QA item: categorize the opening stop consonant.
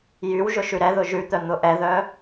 plain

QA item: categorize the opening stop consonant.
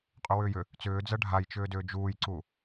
ejective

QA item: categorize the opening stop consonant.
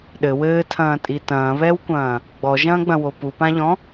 implosive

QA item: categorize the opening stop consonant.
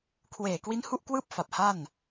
aspirated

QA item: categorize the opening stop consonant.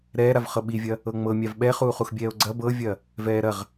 implosive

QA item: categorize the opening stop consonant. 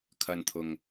aspirated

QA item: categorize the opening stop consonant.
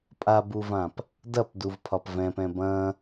ejective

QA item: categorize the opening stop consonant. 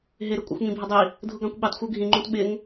ejective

